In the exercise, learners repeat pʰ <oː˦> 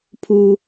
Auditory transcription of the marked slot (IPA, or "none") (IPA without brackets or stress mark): uː˦